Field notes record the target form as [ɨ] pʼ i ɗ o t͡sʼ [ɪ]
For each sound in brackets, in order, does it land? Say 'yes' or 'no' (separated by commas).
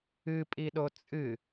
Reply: yes, no